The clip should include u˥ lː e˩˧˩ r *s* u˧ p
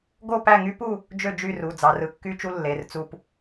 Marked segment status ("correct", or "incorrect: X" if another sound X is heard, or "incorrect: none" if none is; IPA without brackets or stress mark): incorrect: t͡s